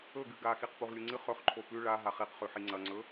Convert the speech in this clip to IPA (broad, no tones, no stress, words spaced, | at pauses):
ɵɡɨ ɡaxiq puʁlʲuŋ͡ǀɨ χɵχǃʰo pʉ ɭa ɦaχiqχʉħi ŋ͡ǀɐŋ͡ǀɵ